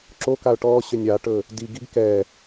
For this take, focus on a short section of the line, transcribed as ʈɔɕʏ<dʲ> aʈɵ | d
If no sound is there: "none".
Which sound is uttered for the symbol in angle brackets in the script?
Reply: nʲ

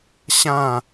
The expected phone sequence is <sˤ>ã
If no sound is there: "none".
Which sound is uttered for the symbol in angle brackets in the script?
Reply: ɕ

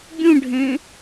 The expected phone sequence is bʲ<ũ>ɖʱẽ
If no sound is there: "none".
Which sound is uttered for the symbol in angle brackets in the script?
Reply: ũ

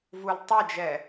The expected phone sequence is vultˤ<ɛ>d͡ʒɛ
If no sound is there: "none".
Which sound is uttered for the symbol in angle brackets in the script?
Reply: ɛ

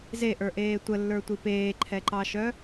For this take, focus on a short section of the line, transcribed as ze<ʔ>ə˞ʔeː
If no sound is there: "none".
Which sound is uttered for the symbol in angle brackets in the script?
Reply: ʔ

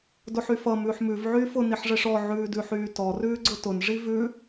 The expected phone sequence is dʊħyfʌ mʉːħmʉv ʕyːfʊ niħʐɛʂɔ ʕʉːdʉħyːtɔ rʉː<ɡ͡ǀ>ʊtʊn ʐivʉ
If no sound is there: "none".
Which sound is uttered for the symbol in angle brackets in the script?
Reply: ɡ͡ǀ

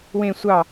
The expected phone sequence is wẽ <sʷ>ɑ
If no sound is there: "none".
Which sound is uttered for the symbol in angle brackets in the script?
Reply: sʷ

